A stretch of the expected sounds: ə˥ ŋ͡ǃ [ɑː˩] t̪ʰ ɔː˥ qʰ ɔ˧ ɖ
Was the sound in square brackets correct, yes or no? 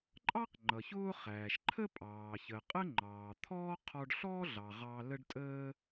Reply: yes